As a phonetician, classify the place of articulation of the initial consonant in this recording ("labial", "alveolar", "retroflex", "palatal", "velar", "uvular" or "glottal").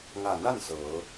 velar